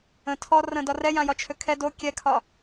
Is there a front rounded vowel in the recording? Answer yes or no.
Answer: yes